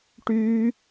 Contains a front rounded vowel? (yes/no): yes